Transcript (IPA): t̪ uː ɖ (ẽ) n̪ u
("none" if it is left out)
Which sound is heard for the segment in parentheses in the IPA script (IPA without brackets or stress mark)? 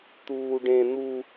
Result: ẽ